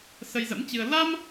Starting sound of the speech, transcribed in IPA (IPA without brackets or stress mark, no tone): s